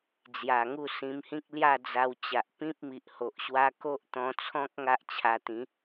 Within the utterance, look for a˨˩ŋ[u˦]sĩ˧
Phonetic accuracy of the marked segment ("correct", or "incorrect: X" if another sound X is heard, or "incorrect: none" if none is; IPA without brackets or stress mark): incorrect: u˥˧